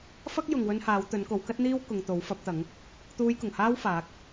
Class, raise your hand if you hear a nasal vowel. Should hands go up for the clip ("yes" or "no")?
no